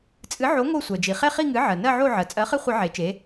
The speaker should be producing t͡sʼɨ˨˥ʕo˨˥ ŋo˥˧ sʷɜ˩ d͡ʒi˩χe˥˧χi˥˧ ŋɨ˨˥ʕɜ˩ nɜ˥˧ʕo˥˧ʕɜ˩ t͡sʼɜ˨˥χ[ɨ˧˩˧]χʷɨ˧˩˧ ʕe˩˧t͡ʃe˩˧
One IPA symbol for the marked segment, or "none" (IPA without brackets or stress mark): ɨ˥˩